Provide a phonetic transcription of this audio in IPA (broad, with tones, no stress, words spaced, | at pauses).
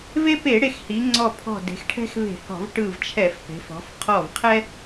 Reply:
ve˦pe˧˩˧ ɽe˧˩xhi˩˧ ŋ͡ǀɔ˧˩pʰɔ̤˧˩ de̤˩˧xʈʰɛ̤˦xve̤˧˩˧hɔ̤˧˩˧v ʈɯ˧˩vt͡ʃʰɛ˧˩˧fpe̤˩˧f ɔ̤˩˧fqʰɔ˧˩vqʰɛ˦